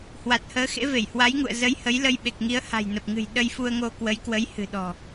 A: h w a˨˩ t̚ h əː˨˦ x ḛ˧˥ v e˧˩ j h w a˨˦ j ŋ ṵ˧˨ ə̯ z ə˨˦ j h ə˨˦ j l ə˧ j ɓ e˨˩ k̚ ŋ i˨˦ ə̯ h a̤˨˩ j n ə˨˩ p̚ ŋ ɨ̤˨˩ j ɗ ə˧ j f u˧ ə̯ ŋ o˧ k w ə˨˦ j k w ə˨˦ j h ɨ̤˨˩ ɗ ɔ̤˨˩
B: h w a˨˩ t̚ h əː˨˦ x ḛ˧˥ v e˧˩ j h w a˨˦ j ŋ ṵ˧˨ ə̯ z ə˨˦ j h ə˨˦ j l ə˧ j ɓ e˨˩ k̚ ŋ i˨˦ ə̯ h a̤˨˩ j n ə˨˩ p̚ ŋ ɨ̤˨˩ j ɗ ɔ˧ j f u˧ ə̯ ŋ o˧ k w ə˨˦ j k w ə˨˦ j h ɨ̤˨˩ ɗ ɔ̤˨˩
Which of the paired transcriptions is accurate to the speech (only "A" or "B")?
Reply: A